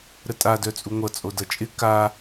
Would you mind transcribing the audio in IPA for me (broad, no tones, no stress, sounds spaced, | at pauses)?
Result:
ɾ ə tʼ a d œ t͡sʼ u ŋʷ ʌ t͡sʼ o d ʌ t͡ʃʼ ɪ k a